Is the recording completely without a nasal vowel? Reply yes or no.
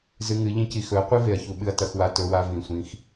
no